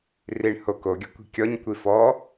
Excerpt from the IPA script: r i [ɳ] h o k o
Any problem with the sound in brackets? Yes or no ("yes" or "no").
no